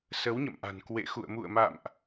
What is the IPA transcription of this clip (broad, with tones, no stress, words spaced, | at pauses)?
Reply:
sə˨˦wɲə̰˧˨mʔa̤˨˩n kwḛ˧˨xṵ˧˨ə̯ mṵ˧˨ə̯ma̰˧˨mʔ